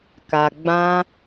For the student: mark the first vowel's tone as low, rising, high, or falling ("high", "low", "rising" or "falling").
low